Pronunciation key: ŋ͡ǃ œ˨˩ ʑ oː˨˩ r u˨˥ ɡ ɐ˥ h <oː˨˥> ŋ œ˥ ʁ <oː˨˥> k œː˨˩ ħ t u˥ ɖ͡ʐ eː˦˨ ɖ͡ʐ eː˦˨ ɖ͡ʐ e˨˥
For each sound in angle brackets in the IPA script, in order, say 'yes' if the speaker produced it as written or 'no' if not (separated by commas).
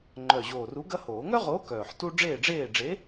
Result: no, yes